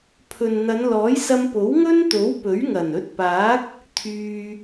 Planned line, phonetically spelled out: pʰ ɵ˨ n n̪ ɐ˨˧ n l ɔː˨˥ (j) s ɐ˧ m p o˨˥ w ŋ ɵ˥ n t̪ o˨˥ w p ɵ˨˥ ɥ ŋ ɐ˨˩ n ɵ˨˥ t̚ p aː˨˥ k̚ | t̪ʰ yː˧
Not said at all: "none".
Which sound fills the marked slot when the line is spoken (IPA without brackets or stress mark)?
j